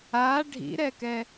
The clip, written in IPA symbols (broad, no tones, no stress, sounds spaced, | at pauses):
a ɖʱ ḭ ɾ ɛ k ɛ